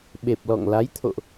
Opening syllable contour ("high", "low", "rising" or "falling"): low